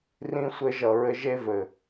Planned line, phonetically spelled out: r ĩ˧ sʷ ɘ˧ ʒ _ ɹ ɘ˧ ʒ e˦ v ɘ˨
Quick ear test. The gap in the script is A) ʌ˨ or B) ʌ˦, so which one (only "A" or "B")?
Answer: A